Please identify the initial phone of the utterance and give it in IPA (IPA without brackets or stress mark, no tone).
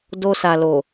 d